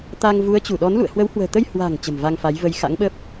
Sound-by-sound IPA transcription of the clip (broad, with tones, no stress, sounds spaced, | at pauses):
t̪ a˧ ŋ v u˨˦ ə̯ t͡ɕ u˧˩ ɗ ɔ˨˦ n l ṵ˧˨ ə̯ h w ə˨˦ w h w ə̤ː˨˩ t̪ ə˧ j h w a̤˨˩ ŋ t͡ɕ ə̤˨˩ m v a˧ ŋ f a˨˦ j v ə˧ j x a̰˧˥ ŋ ɓ əː˦˥ p̚